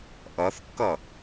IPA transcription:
ʔ ʌ θ kː ʌ

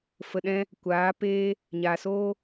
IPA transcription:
f ə˨ ɗ ɛ̃˧ | kʷ aː˨˦ p eː˦ | ɲ aː˨ s oː˦

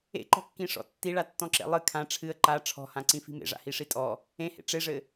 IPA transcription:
ḛ ǃ ɔ̤ kː ĩ ʂ ɔ̰ tː i ɭ a tː ɔ̃ ǁ ḛ lˠ ɨ kʰ ã ʈ͡ʂʰ ɨ ə̯ ǃ a ʈ͡ʂʰ ɔ̤ h ã ǀ ĩ f i̤ m ḛ ʐ a̰ h i ʂ i tʼ ɔ | ẽ h ḛ ʈ͡ʂ e ʐ ɘ

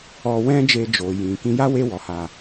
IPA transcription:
ɔ˧ w ɛ̃˦ d͡ʒ e˧ d͡ʒ o˨ j ĩ˨ k ĩ˧ j a˦ w e˧ w ɔ˨ h a˨

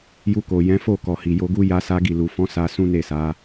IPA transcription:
j u˧ k o˨ j ɛ̃˨˦ f o˦˨ k ɔ˨ h i˨ j o˧ ɡ u˦ j a˦ s a˦ ɡ i˦˨ l u˨ f ɔ̃˨˦ s a˧ s ũ˦ n e˦˨ s a˨˦

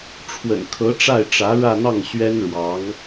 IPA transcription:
ʈ͡ʂʰ w ə̰˨˩ n kʰ ɤ˧˥ ʈ͡ʂ a˥˩ ɪ̯ ʈ͡ʂ ä˧˥ ɻ ä˥˧ n̪ ɑ˥˩ ŋ ɕ ɥ ɛ˥ n ɻ w ɑ˧˥ ŋ

